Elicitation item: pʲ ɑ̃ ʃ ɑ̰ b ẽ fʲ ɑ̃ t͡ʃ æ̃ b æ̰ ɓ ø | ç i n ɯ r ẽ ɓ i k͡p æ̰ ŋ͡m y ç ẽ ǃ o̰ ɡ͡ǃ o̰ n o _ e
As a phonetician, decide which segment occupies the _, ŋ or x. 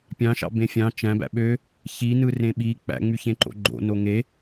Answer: ŋ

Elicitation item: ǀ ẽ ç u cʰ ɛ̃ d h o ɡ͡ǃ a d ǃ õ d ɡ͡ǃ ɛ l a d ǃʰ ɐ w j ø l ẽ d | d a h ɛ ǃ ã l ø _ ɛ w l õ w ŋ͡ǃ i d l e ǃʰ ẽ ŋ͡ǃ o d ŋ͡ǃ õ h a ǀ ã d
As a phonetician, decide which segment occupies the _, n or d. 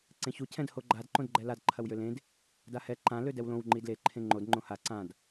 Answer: d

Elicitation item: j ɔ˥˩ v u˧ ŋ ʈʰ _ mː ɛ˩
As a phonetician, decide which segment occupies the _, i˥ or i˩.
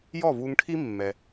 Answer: i˥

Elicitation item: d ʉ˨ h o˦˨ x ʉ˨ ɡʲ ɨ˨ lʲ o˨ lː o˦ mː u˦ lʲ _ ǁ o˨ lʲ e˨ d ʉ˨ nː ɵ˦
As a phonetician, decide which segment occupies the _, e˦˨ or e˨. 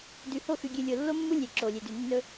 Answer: e˨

